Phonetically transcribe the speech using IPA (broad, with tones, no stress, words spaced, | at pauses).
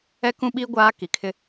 ɛ˦kũ˦ɓiː˦ ɡʷaː˦ki˨kʰɪ˦